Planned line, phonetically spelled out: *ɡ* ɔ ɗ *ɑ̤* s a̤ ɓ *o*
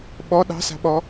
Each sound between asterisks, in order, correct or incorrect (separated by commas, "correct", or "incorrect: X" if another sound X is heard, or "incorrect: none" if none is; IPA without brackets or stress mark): incorrect: ɓ, correct, incorrect: ɔ